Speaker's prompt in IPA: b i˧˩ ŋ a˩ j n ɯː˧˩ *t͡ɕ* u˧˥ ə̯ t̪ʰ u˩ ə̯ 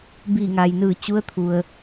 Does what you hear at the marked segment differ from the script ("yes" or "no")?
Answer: no